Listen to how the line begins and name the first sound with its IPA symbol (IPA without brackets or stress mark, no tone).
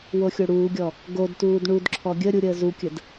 w